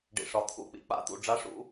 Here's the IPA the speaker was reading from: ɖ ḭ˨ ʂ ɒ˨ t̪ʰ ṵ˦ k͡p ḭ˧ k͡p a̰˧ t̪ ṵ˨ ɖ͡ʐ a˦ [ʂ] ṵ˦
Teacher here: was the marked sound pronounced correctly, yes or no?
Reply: yes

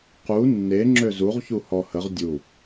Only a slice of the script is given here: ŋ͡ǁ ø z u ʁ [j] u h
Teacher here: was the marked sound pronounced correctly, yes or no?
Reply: no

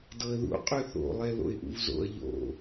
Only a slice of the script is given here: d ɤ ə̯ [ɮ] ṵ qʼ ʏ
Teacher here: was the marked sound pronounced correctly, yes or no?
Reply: no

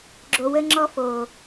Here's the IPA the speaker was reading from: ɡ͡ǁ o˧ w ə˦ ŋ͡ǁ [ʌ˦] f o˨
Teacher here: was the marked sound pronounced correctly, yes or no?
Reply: no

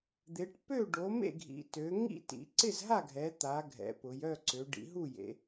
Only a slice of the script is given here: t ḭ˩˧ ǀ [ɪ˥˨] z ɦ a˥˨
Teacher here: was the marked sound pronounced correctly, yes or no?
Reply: yes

